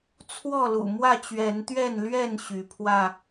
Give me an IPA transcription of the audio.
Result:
t͡sʰ w ɔ˥˨ l ṵ˨˩ m w ä˥˨ t͡ɕ ɥ ɛ˨˦ n t̪ ɥ ɛ˥˨ n l ɥ ɛ˥˨ n ɕ y˨˦ pʰ w ä˥˨

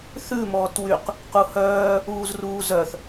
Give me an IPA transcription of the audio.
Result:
θ ʉ m ɔː t w y q | q u h œː | uː z r uː z œ θ

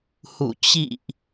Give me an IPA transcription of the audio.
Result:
h ṵ˧˨ t͡ɕ ḭ˧˨ ʔ

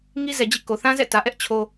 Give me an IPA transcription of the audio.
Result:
ŋ i˦ z ɛ˨ d͡ʑ ḭ˦˨ k o˨ θ ã˦ z ɛ̰˦˨ t ä˨ ʔ ɛ˦ ʔ t͡ɕʰ o˦

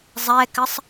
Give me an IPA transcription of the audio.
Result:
zˤ ɛ k ɘ sˤ

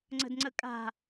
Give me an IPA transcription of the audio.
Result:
ŋ͡ǀ ə̤ d ŋ͡ǀ ə kʼ a̤

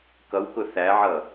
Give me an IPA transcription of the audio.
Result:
k ʌ w k ʊ θ æ ʕ ʌ

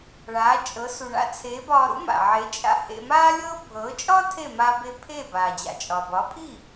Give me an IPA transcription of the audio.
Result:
ɭ aː˩˥ t͡ʃʼ ɤ˩˥ s u˩ ɳ a̰˧ t͡sʰ eː˩˥ b ɒː˧ ɾ ṵ˥ m a̰˩ ʕ e˩˥ t͡ʃʼ a̰˧ h ḛ˧ m aː˥ lʲ ɤː˥ bʱ ɤː˩˥ t͡ʃʼ ɒ˥ tʰ e˥˩ m a˧ b e˧ pʰ eː˥˩ b aː˩ d͡ʑ a̰˩ t͡ʃʼ ɒ˩ b ɒ˩˥ pʰ i˥˩

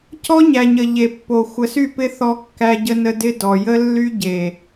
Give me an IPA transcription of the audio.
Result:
c ɔ˦ ɲ æ˨ ɲ ə˨ ʎ e˨ pː o˨ xʷ ə˨ s y˦˨ p ɪ˦ θ ɔ˦ kː æ˦ ɟ ə˦ n ə˦ d ɪ˦ d ɔ˨ j ə˦ lː y˦ ɟ e˨

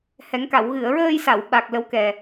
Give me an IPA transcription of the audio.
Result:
h ɛ˨˩˦ ŋ k a˨˩˨ w ɣ ɨ˨˩˨ ə̯ ɹ əː˧ j s a˨˩˨ w ɓ a˨˩ k̚ l ə˧˥ w k ɛ˨˩

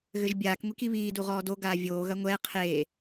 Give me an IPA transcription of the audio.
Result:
ɣ ɘ ʒ bʲ aː k ŋʷ i k i β iː d u ʁ ɔː d o ɡ aː vʲ oː ɣ ɐ ŋʷ ɛː qʰ eː

